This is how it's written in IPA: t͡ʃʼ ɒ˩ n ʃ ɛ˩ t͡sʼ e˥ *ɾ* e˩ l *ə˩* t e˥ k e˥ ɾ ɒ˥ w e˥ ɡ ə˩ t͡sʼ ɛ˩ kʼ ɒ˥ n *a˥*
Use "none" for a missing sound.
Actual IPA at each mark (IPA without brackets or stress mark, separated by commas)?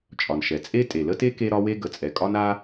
tʼ, ə˥, a˥